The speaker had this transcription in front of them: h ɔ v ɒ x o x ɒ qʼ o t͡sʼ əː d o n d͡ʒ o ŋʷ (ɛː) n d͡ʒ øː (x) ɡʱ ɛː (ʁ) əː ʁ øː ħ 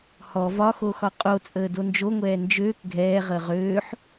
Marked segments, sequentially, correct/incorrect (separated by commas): correct, incorrect, correct